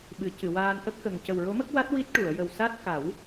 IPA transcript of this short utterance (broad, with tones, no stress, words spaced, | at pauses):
ɓɨ˨˩˦cɨ˨˩˨waː˧n ʔə˦˥k̚xə˨˩ŋ cə˨˩wɹo˧˥mə˦˥k̚wa˦˥t̚ wi˦˥t̚ʈu˨˩˨ə̯jə˨˩w sa˦˥t̚ ka˨˩˦w